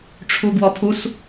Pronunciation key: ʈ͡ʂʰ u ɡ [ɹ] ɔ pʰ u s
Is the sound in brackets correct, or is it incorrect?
incorrect